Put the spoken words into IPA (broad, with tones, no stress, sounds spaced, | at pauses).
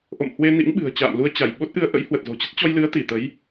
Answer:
ʔ o̰˧˨ m h w e˧ n ḭ˧˥ ŋ ɓ ɨ̤˨˩ ə̯ t͡ɕ a̰ː˧˨ m l u˧ ə̯ t͡ɕ a˧˩ j ɓ o˦˥ t̚ ʔ ɨ˧ ə̯ ʔ ə̰˧˥ j h w ə˨˩ t̚ z o̤˨˩ t͡ɕ ə˦˥ t̚ t͡ɕ ɔ˧ j l ɨ˨˦ ə̯ t̪ i˧˩ t̪ ə˨˦ j